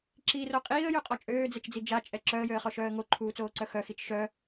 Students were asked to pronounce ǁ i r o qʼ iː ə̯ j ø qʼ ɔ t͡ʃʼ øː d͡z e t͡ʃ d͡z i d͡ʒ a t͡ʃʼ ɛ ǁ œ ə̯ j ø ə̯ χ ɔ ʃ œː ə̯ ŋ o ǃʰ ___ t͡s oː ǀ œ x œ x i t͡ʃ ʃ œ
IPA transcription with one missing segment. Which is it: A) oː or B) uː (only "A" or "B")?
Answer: B